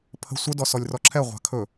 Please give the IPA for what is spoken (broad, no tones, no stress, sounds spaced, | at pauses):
pʰ ə̤ sʷ ə d ɔ s ɔ lʲ r ɔ ǁʰ ɛ ʁʷ a̤ kʰ ɵ